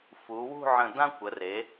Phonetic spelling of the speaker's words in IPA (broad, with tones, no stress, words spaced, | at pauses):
fu˩˧wṳ˥˧ʕə̃˧˩dã˥ kʷə˩˧re˩˧